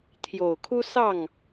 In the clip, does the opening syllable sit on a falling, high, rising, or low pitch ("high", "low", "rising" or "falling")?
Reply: low